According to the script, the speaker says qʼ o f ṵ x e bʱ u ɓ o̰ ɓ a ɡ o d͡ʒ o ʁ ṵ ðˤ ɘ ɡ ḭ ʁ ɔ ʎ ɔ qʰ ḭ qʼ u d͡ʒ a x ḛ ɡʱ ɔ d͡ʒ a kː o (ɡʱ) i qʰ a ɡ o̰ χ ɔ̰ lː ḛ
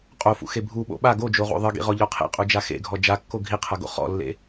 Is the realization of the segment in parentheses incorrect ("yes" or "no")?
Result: no